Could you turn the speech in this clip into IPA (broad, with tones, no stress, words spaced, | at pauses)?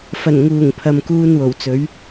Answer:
fɐ˨˩nŋuː˨˩ŋ pʰɐ˨mkuː˧nwo˨˩wt͡sɵ˨˥ɥ